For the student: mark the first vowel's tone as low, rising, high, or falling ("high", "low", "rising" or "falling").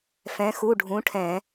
rising